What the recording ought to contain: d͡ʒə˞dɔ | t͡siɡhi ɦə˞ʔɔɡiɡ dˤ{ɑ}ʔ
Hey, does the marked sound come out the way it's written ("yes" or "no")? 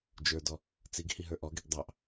yes